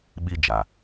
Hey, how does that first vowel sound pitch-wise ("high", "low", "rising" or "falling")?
high